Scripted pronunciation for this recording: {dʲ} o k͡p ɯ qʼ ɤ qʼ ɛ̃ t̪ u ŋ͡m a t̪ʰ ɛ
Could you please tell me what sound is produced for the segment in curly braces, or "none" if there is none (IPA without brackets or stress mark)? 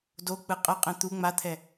d